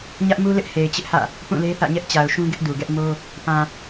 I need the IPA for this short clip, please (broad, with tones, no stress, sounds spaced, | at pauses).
ɲ ä˦ ʔ m u˦ l ɪ˦ ʔ h e˨ ɪ̯ t͡ɕ ɪ˦ ʔ h ä̰˦˨ | p ũ˦˨ l e˦ θ ä̰˦˨ ɲ ɛ˦ ʔ t͡ɕ a˨ ʊ̯ ʃ ũ˦ ɡ ɪ˦ ʔ d u˨ ɡ ɛ˦ ʔ m o˦ | p ã˨